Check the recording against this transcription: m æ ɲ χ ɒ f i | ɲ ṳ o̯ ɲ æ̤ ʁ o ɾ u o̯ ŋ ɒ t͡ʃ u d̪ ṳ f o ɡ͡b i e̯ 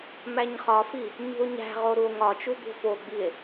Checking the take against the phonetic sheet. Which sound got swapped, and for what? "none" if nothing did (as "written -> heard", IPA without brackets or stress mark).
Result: none